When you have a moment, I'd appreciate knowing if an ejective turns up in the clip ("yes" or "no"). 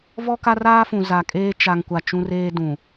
yes